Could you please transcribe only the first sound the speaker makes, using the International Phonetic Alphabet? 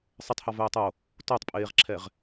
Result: sˤ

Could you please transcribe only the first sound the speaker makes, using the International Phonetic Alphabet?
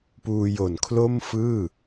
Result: p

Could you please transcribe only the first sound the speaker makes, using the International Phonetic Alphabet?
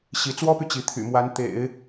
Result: ɕ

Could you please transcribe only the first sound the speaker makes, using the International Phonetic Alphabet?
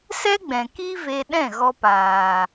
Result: s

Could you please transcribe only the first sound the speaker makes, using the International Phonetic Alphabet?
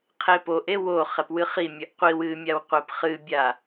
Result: qʰ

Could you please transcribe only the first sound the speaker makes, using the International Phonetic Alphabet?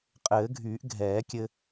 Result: qʼ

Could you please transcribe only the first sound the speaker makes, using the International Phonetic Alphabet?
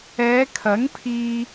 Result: ɛː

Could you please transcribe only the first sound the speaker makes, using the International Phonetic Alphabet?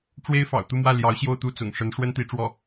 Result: ʈ͡ʂ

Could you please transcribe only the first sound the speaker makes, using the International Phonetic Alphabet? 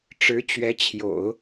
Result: ʈ͡ʂ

